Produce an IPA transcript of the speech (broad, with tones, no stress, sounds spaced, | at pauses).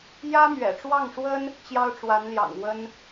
j ä˥ m ɥ ɛ̰˨˩ ʈ͡ʂ w ɑ˥˩ ŋ ʂ w ə˥ n | t͡ɕ j ɑ˥ ʊ̯ ʈ͡ʂ w a˧˥ n l j ɑ̰˨˩ ŋ w ə˥ n